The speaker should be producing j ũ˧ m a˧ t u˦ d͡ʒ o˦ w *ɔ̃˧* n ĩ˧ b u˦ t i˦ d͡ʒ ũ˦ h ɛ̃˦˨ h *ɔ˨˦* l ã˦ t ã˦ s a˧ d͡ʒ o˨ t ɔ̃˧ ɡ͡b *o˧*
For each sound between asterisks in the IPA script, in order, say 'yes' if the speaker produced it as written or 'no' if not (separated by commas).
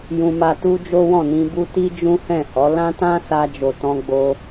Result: no, yes, yes